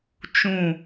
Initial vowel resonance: nasal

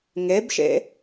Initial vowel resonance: oral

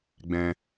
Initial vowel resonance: nasal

